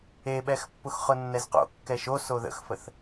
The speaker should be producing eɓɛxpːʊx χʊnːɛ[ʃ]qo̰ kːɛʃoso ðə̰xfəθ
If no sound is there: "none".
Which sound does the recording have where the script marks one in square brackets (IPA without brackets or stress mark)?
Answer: z